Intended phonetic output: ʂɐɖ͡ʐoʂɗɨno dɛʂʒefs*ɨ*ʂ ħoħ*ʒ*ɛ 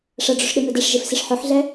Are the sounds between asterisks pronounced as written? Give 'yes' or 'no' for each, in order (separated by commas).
no, no